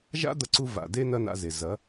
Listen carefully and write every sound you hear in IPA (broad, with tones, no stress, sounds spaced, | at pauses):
ʒ a̰˦ d̪ ɐ˧ ǀ u˧ v a̰˨ d e˦ n ɐ˦ n a̰˧ z e˨ z ɐ˨˦